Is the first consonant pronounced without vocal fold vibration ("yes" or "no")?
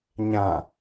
no